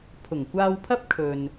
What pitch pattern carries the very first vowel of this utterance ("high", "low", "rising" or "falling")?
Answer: low